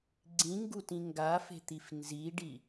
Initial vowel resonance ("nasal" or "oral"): nasal